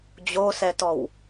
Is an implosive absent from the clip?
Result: yes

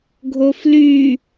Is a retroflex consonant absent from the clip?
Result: yes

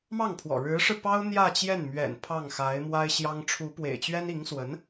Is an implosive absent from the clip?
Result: yes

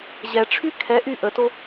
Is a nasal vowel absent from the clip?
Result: yes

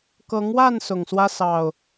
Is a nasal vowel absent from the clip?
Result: yes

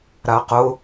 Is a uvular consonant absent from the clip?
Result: no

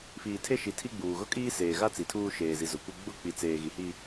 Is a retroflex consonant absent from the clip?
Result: yes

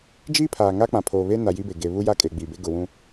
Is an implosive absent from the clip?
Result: yes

